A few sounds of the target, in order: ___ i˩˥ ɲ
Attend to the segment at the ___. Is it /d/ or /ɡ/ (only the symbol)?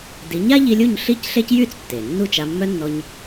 d